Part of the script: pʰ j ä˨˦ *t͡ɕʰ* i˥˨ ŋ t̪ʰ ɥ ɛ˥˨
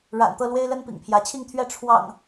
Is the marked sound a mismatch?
no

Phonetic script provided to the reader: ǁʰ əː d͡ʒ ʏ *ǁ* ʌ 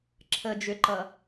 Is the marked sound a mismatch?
yes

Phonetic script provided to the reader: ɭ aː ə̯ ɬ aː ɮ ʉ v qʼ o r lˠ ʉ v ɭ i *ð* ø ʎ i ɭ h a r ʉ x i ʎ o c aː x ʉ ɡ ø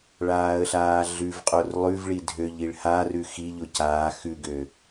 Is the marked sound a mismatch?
yes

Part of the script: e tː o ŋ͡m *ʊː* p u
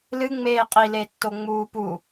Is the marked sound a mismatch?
yes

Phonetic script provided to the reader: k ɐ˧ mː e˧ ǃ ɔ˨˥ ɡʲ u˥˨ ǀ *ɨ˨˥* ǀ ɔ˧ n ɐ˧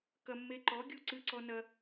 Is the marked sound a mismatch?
yes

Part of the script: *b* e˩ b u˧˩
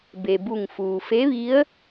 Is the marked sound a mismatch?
no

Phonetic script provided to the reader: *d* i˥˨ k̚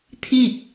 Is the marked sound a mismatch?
yes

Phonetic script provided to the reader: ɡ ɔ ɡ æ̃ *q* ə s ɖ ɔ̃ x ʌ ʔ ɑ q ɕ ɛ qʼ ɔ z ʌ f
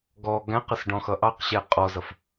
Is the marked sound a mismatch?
no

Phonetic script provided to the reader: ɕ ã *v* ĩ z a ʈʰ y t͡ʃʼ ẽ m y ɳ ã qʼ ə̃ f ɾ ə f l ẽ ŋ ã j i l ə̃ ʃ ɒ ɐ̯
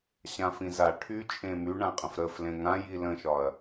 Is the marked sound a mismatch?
yes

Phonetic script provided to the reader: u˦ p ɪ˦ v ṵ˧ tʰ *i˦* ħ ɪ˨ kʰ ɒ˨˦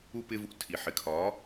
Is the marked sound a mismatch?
yes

